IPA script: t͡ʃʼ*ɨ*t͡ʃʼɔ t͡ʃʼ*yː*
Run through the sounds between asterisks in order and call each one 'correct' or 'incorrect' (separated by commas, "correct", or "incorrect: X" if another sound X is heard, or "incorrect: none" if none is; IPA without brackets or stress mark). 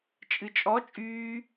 correct, correct